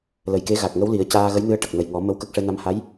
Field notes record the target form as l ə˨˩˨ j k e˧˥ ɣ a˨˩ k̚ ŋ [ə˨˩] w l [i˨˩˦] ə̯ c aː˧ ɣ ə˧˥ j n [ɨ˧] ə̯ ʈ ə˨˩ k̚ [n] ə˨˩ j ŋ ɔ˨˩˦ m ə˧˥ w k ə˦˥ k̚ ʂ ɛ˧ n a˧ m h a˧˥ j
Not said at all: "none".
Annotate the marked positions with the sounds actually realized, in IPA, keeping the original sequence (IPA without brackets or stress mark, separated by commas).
ə˧˥, i˨˩˦, ɨ˧, n